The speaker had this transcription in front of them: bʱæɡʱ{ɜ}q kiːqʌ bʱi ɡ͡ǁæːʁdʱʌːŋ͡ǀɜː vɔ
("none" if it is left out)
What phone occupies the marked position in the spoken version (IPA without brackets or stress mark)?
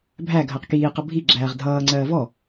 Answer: ɜ